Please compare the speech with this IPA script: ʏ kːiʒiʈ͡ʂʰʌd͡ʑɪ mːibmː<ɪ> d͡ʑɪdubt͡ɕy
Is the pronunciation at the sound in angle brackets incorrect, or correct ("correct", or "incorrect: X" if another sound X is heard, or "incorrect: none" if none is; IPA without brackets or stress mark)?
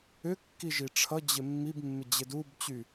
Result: correct